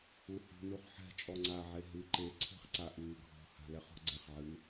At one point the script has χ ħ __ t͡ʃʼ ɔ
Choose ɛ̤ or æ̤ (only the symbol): ɛ̤